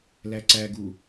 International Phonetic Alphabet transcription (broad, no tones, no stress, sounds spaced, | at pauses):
l æ ǀ æ ɡ u